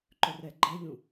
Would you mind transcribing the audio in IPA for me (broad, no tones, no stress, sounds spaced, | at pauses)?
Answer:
ǃ ɵ r ɛ ɡ͡ǃ ɛ ʎ ũ